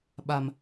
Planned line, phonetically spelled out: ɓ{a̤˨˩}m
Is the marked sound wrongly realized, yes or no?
yes